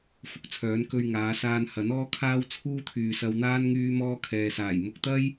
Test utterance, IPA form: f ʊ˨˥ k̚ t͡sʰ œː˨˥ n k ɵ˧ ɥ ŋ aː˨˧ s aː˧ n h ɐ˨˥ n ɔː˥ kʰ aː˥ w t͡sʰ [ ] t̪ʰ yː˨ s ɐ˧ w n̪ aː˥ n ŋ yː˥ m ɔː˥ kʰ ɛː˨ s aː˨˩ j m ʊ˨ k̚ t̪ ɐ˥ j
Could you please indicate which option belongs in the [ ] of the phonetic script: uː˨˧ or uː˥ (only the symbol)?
uː˥